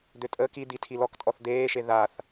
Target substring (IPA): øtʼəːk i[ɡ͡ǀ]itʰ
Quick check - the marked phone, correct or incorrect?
incorrect